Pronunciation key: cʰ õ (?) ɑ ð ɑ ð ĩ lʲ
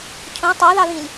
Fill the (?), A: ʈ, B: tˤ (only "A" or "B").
B